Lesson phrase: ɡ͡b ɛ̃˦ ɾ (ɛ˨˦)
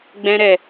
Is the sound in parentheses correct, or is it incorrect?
incorrect